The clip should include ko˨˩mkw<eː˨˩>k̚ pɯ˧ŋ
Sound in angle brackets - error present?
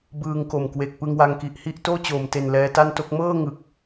yes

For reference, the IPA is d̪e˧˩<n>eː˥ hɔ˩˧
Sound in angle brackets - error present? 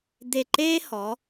yes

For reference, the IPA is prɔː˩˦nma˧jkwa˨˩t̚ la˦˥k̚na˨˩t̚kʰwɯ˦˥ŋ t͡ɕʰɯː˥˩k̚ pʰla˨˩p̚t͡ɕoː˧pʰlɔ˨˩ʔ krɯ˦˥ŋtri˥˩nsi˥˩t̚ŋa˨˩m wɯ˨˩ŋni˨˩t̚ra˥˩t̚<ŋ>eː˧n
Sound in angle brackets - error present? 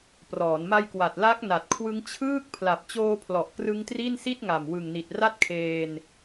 yes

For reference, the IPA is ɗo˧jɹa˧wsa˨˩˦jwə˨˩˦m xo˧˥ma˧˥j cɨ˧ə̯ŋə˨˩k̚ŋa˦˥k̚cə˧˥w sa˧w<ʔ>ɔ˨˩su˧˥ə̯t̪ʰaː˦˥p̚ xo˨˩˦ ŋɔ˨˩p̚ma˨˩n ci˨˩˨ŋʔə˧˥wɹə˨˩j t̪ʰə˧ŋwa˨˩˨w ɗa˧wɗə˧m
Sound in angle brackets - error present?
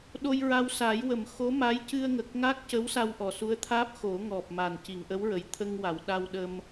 no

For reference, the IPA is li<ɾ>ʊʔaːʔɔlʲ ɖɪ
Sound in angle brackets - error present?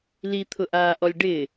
yes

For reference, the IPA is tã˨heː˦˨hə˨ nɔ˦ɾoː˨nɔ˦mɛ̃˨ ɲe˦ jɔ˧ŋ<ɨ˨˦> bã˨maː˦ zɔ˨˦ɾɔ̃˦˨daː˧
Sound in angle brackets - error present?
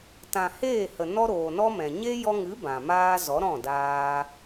no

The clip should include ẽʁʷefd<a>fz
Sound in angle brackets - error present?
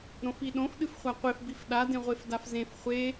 no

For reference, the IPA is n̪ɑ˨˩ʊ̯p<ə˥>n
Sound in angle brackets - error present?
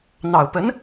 yes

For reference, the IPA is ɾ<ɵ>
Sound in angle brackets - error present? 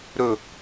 no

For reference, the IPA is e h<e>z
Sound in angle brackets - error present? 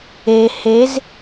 no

